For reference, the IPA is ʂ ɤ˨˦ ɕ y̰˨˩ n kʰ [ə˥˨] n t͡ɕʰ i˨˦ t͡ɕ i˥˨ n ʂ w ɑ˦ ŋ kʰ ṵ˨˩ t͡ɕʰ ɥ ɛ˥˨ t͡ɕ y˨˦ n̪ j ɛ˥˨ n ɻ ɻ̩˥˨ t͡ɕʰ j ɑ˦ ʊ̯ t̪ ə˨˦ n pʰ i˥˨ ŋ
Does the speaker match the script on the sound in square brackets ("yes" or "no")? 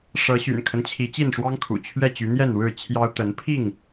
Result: no